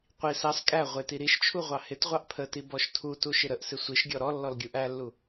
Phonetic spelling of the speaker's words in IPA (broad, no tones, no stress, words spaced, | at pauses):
qʷi sɑs kʼæ ʁʷɪti ɾiʃt͡ʃʰu ʁʷɑhɪtʁʷɑʔ pʰəti bɔʃtʰutu ʃɪɾəʔsɪ sʷiʃɡʲɔ ɾɔ lːɔlɡʲuʔælːu